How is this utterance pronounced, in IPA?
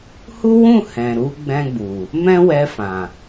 h u˦ w ũ˦˨ h ɛ̃˨ ɾ u˨˦ ɡ͡b ɛ̃˧ ɡ͡b u˨ | m ɛ̃˦ w ɛ˧ f ã˨

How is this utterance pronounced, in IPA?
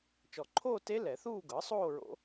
t͡ʃ ɔ˨˩ ǃʰ oː˥˧ t e˦˥ l ɛ˨˩˦ θ uː˥˧ ɡ ɤ˩˥ sˤ oː˥˧ ɹ o̰˦˥

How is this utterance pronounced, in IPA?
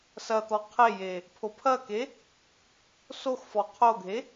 s ɐ t̪ ɔ qʰ e j e | pʰ o pʰ ɐ k e | s o x f ɔ qʰ o ɡʱ e

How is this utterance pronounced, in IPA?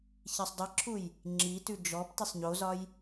ç i sˤ dˤ i ǁʰ u j | ŋ͡ǁ i t ʉ d͡ʒ ɔ p t i sˤ ɲ o z ɒ j

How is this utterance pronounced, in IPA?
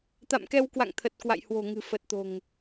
t̪ a̰˧˨ m k ɛ˧ w k w a̰˧˨ ŋ t̪ʰ ə˨˩ t̚ k w a̰˧˨ j h w o̤˨˩ ŋ ɨ̤˨˩ f ə˨˩ t̚ t̪ o̤˨˩ ŋ

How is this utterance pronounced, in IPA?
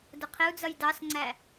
d ʊ qʰ ɪ u̯ d͡z ʌ j d ɑ s ŋ͡ǀ æ

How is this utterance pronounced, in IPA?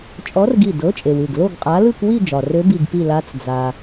t͡ʃʼ ɔ˧˥ r ɡ i˧˩ d ɤ˧˥ t͡ʃʼ e˩ w ɯ˧˩ ɡ l o˥˧ ɡ qʼ a˧˥ l ɯ˥˧ k w i˥˧ d͡ʒ ɒ˩ r ø˧˥ b i˧˩ ɡ p i˧˩ l a˧˥ t͡s d͡z a˩

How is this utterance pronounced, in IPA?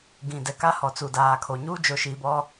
ɡ ĩ˨ d ɛ˨ k a˦ h ɔ˨ t͡s uː˨ d aː˨ kʰ o˨ ɲ uː˦ d͡ʒ o˨ ʃ i˨ b ɔ˦

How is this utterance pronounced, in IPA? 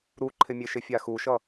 ɾ u ǃʰ ɪ mʲ e ʃ ɪ fʲ a x u ʃ ʌ

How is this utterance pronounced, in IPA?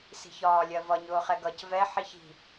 s i̤ ç ɒː lʲ ɜ v ʌ ɲ ʊː χ ɛ ɡ ʌ c v ɛ ħ i ç i̤

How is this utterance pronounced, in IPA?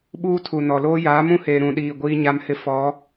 ɓ uː˦ tʰ u˨ n ɔ˨ l oː˦ j aː˨˦ m ũ˦ h eː˨ ɾ ũ˨ ɗ iː˨ ɡʷ iː˦ ɲ a˦ m h ɪ˦ f ɔ˨˦

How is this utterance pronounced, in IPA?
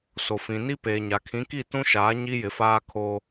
s o˨ f ĩ˨ n i˦ p eː˨ ɲ a˨ kʰ ĩ˨˦ k i˦˨ t ũ˦ ʃ aː˨˦ ɲ i˦ j ɪ˨˦ f aː˦ kʰ oː˦

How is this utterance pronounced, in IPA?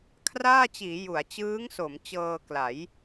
kʰ r aː˥˩ t͡ɕ iː˩˦ j u˩˦ a̯ t͡ɕ ɯː˦˥ ŋ s o˩˦ m t͡ɕ ɤː˧ k l a˩˦ j

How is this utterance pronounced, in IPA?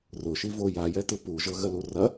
r ʊ ʃ i v o j a j ɛ t ɯ p u ʒ ɤ ɣ ə l u r ɐ

